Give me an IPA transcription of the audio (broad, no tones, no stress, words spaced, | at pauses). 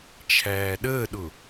t͡ʃʰæːɗəːɗʊ